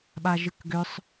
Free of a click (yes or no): yes